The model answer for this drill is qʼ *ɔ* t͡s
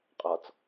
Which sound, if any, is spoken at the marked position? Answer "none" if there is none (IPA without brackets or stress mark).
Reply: ɔ